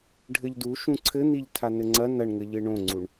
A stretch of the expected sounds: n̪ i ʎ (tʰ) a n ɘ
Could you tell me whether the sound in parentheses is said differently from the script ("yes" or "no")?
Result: no